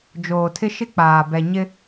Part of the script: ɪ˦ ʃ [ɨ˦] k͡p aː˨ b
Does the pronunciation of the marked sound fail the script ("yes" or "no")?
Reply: yes